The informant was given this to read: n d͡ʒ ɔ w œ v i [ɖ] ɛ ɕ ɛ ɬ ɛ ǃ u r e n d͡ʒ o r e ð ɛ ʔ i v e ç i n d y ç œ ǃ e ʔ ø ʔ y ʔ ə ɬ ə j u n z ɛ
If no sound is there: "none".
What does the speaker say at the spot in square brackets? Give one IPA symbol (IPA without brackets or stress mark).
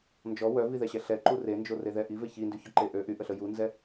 ð